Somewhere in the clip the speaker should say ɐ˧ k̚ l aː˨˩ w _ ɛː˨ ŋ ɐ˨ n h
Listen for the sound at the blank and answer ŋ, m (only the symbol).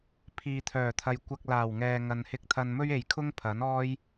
ŋ